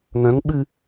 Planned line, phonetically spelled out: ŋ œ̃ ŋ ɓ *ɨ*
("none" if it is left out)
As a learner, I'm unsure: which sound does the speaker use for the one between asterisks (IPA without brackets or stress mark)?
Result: ɨ